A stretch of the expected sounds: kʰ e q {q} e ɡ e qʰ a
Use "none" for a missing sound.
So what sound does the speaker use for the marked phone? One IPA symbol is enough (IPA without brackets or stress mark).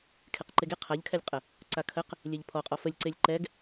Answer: ǃ